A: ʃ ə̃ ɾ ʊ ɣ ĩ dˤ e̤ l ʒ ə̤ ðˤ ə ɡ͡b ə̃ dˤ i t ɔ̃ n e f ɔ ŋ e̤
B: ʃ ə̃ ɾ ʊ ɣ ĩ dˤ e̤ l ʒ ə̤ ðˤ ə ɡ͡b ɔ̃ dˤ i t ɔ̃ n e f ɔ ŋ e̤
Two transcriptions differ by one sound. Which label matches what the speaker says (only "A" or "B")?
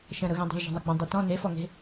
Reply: A